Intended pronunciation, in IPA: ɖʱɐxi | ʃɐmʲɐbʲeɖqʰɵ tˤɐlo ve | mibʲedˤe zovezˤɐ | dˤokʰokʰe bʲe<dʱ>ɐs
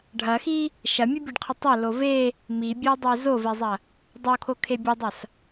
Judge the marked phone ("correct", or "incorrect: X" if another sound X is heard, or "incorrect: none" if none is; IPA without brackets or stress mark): incorrect: dˤ